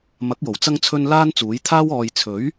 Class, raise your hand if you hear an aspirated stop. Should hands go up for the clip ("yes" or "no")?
yes